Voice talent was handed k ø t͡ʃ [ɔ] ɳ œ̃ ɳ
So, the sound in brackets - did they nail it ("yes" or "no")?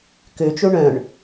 no